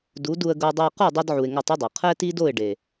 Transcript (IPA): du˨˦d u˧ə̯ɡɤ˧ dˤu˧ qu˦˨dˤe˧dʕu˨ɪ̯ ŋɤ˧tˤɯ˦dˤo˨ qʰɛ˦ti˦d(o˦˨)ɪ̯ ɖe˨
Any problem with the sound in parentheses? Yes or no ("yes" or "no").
no